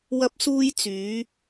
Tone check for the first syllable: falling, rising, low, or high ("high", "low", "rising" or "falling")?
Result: high